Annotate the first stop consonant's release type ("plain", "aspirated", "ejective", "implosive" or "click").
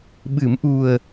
implosive